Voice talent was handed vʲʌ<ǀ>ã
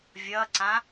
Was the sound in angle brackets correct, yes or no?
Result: yes